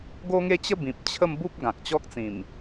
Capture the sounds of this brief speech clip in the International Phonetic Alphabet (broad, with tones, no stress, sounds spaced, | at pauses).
ɡ o˦ ŋ e˦ t͡ɕ ə˦ b ĩ˨ p̚ t͡ɕʰ ə˥˧ m b u˦ p̚ ɡ ã˨ k̚ t͡ɕ ɔ˦ k̚ t͡s ĩ˨˩ m